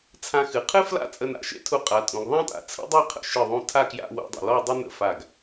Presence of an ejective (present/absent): present